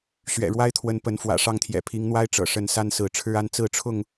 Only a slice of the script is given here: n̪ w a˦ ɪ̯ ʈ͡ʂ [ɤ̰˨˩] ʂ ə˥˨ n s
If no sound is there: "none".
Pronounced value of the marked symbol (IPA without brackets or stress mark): ɤ̰˨˩